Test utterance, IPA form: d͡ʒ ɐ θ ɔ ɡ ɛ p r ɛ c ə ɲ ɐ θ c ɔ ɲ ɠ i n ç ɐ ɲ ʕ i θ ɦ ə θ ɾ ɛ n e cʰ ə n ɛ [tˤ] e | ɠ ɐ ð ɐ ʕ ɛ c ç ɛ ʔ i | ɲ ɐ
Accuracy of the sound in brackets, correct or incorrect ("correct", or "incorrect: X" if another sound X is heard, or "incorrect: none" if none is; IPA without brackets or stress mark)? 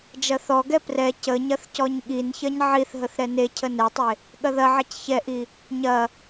correct